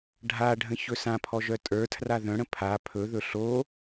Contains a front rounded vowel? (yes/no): yes